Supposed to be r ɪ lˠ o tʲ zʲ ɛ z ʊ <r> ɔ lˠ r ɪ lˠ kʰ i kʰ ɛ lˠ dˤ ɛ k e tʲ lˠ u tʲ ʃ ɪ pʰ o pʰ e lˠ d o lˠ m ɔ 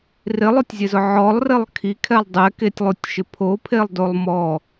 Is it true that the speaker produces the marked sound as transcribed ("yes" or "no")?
no